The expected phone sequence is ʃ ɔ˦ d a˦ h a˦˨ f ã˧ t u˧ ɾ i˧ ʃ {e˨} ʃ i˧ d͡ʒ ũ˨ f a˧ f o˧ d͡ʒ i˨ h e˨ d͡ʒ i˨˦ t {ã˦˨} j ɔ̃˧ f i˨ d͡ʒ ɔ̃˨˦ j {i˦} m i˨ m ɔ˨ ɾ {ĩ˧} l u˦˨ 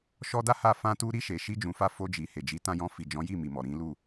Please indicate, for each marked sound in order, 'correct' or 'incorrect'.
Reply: correct, incorrect: ã˧, incorrect: i˦˨, incorrect: ĩ˨˦

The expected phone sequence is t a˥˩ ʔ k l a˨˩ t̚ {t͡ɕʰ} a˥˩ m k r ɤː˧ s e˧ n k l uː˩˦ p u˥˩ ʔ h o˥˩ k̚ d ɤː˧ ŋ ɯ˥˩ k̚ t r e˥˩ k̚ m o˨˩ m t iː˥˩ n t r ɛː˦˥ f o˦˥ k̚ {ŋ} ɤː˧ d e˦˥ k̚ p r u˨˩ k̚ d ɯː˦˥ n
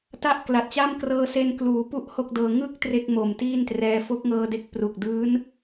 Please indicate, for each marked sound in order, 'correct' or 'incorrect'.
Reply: incorrect: t͡ɕ, correct

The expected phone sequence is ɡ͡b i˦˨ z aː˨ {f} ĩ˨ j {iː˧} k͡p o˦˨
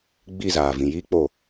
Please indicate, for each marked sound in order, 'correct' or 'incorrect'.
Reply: incorrect: v, incorrect: iː˦

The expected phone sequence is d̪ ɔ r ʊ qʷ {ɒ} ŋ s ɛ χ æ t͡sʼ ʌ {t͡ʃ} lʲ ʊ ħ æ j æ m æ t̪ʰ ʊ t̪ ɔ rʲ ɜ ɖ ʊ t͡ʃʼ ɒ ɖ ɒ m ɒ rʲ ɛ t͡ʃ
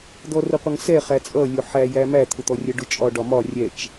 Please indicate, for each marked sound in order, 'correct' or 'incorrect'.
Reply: incorrect: ʌ, incorrect: none

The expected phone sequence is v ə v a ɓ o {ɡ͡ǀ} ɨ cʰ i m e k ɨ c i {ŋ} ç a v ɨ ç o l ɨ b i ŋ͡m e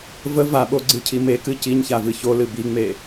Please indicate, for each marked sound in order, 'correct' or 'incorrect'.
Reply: correct, incorrect: ɲ

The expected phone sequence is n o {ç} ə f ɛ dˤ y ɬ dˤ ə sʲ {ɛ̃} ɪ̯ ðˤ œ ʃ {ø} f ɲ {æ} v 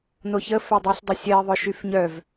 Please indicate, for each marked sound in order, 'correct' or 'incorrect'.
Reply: correct, incorrect: ɛ, incorrect: y, incorrect: œ

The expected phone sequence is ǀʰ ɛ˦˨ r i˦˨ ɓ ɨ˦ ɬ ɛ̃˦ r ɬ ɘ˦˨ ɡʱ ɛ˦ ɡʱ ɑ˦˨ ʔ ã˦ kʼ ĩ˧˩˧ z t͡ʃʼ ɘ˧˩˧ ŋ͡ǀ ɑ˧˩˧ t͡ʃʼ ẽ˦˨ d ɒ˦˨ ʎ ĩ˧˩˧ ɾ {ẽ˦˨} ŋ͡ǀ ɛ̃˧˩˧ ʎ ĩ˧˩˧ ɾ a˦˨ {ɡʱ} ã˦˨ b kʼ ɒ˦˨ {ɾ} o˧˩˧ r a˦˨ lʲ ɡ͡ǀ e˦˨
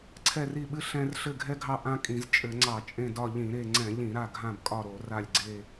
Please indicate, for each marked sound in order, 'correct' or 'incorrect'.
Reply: incorrect: e˦˨, correct, correct

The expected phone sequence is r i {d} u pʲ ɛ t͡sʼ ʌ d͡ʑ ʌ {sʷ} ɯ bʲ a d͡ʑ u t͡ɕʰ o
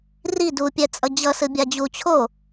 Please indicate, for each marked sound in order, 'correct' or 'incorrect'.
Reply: correct, incorrect: s

